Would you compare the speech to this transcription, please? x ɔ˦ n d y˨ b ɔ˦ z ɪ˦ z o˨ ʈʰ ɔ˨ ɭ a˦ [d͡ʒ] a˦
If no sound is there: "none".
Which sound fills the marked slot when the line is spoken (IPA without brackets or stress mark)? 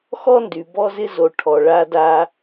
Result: d